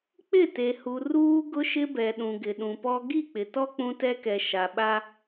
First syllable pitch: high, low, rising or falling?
falling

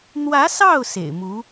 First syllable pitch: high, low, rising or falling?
rising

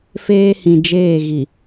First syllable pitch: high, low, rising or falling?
high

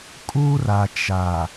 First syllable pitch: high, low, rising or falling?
high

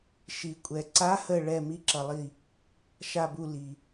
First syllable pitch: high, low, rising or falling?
low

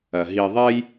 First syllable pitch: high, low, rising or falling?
low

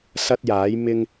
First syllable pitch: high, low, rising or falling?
high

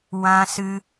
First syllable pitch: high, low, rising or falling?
high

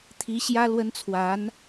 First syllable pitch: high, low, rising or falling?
rising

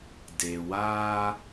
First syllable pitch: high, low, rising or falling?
low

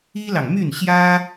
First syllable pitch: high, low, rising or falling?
high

